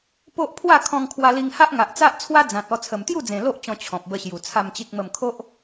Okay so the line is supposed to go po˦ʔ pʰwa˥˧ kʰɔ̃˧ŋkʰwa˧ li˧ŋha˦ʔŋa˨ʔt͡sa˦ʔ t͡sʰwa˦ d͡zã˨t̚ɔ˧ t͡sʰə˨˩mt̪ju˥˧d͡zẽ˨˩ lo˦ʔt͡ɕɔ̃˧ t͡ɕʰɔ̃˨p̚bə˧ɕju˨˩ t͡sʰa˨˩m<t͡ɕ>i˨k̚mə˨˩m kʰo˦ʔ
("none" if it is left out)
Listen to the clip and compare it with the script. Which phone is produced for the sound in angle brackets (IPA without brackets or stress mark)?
t͡ɕ